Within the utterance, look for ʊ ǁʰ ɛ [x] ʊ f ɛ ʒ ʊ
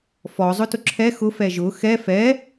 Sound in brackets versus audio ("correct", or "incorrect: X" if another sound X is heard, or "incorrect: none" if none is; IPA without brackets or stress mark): correct